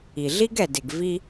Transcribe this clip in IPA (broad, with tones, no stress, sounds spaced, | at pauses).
i˩ ɮ i˥ ɡ ɛ˩ d ɪ˩ ɡ v i˧